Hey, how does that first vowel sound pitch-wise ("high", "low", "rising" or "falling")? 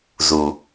low